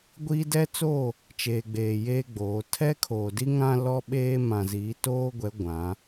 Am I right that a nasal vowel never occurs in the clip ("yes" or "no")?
no